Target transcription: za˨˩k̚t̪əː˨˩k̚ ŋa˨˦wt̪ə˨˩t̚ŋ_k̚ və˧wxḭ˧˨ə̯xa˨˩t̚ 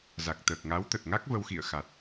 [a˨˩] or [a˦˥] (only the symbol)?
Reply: a˦˥